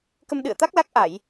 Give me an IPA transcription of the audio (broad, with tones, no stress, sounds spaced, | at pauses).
k ə˧ m ɗ ɨ̰˧˨ ə̯ t̪ a˦˥ k̚ l a˦˥ k̚ ʔ a˧˩˨ j